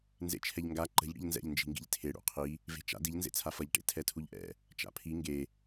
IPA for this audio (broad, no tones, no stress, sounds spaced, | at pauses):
n z ḛ t͡ʃʰ ɛ ʎ ŋ ɡ a ǃ ə̤ ʎ ɽ ḭ ʎ n z ɛ̰ ʎ n d͡ʒ i̤ ŋ ɡ ḭ ʎ tʰ e ɽ ṵ qʰ i | v e̤ t͡ʃ a̰ d i ʎ n z ḛ t͡sʰ a f ʌ ʎ ʈ ḛ tʰ ɛ tʰ u ʎ ʔ ɛ̰ | t͡ʃ a̰ pʰ i ŋ ɡ e